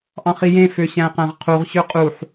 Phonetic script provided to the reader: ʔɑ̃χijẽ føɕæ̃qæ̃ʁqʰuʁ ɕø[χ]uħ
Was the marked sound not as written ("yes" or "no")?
yes